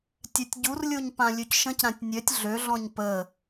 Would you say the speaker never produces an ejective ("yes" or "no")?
yes